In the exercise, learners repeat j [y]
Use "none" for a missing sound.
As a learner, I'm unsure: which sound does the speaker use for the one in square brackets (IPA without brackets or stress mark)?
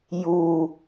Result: u